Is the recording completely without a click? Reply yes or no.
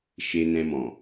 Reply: yes